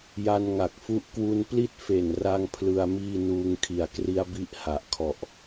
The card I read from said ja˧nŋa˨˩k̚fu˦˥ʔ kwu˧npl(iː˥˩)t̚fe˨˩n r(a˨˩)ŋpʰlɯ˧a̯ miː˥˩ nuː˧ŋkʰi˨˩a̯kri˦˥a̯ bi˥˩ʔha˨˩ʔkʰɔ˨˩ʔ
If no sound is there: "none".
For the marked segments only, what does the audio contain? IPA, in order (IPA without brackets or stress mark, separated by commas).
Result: i˥˩, a˥˩